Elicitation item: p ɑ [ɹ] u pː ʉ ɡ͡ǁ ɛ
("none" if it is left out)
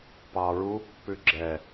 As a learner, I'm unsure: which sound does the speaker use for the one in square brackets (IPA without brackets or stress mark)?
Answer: ɹ